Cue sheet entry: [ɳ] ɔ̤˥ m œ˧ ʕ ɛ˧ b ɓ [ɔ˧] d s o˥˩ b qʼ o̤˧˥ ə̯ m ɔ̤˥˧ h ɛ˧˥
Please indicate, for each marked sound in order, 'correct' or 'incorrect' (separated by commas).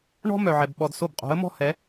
correct, correct